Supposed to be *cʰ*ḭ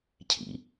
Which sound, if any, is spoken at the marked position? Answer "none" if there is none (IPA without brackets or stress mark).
cʰ